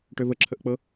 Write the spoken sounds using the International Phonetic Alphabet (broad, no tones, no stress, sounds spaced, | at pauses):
ʈ ø v ə ǁʰ ə ʔ k͡p ɤ